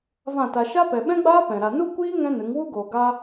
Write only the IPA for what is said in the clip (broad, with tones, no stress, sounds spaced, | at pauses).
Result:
v ã˦˨ t a˧ ʃ a˦ p ɛ˨ ɓ ɛ̃˦ ɡ͡b aː˦ p ɛ̃˨ ɾ a˨ n u˦ kʷ iː˦ ŋ ɛ̃˦ n ɨ˨˦ ŋ w u˦ ɡ oː˨ ɡ a˧